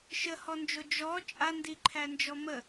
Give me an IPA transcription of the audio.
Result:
ʃ ə h ɔ n d͡ʒ o d͡ʒ ɔ t͡ʃʼ a n d i ǃʰ æ n d͡ʒ ɔ m ə

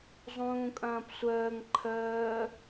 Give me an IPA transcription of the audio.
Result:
zˤ ũː kʼ ɐ̃ː p sʷ əː ŋ ǃʰ əː

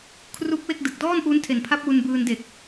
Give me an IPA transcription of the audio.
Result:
kʰ r u˦˥ k̚ w e˥˩ k̚ d ɯ˨˩ k̚ d ɔː˥˩ n ʔ uː˦˥ n tʰ e˨˩ n pʰ a˦˥ p̚ w u˧ n b ɯː˧ n d e˨˩ k̚

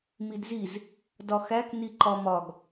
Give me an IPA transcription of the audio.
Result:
m i d z i z | d ɒ x æ k n i ǃ ɒ m ɒ ɡ

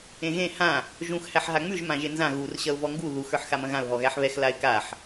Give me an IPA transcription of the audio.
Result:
ẽ ɣ ẽ h ã | ʒ ũ x h æ ħ ɦ a ŋ͡m ʉ ʒ m ã ʒ e n z ã ɣ u r ɕ ɐ ʊ̯ v ɔ ŋ ɡ u ð u x ə˞ ħ x a m ɐ̃ ɣ ã ʊ̯ ɦ ɔ ɣ æ ħ β ɛ x l a ɪ̯ k a ħ

